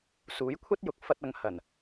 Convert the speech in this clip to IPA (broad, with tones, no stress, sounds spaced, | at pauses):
s uː˨˥ j kʷʰ ɐ˥ t̚ j ʊ˨ k̚ f ɐ˧ t̚ ɐ˨ ŋ h ɐ˨˩ n